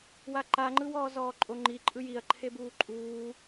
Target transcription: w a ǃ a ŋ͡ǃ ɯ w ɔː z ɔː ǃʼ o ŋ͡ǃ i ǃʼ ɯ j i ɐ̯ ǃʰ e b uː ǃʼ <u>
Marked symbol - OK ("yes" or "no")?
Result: no